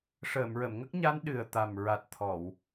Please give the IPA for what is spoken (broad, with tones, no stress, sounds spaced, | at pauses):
ʂ əː˨˩˨ m ɹ ə˨˩˨ m ŋ ə˦˥ k̚ ɲ a˧˥ n ɗ ɨ˨˩ ə̯ t̪ a˨˩ m ɹ a˨˩ t̚ t̪ʰ ɔ˨˩˨ w